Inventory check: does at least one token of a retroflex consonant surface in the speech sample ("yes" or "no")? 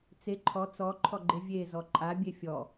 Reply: no